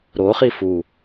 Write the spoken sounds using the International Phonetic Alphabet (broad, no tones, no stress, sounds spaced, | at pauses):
ɾ o χ i f u